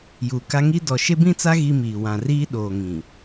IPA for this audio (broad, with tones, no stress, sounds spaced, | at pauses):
j u˨ k a˦ ŋ i˦ d ɔ˨ ʃ e˦ b ĩ˦ t͡s a˦ ɣ i˦ m iː˨ w ã˨ r iː˦ ɗ oː˨ ŋ ĩ˨